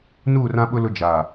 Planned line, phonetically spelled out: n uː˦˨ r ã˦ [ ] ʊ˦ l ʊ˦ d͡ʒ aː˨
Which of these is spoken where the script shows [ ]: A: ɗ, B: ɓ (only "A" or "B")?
B